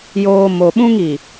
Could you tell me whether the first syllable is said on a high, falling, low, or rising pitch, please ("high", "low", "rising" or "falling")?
low